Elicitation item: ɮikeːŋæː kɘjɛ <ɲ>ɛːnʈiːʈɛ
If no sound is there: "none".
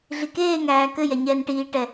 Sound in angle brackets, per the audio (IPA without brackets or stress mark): ɲ